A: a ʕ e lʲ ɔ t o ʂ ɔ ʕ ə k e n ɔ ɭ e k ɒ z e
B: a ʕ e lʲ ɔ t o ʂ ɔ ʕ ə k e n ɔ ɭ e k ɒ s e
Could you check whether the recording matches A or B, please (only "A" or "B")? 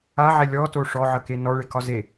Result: A